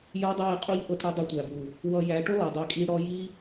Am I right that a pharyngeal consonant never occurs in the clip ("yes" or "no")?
yes